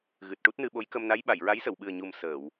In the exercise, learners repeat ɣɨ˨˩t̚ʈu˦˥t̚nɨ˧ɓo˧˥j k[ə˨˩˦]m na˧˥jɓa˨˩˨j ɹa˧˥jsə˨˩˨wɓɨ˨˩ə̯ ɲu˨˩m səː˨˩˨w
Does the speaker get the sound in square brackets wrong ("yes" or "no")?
yes